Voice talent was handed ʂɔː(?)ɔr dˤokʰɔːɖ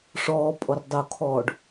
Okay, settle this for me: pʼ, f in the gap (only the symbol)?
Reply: pʼ